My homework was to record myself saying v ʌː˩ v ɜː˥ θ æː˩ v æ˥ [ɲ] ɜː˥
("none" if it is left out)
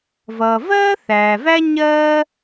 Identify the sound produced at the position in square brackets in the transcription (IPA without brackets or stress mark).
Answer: ɲ